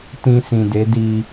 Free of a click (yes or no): yes